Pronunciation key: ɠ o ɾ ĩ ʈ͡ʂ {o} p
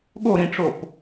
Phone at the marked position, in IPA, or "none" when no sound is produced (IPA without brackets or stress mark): o